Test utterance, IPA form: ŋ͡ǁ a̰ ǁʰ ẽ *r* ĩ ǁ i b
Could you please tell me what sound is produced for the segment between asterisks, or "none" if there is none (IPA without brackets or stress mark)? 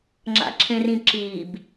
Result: r